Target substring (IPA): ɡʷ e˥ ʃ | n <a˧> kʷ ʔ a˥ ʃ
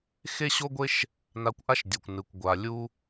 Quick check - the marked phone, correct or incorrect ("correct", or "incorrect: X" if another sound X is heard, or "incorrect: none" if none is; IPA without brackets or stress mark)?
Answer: correct